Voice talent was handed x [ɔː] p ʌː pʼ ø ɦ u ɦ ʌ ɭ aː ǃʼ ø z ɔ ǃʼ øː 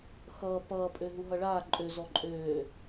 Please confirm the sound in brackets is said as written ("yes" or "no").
no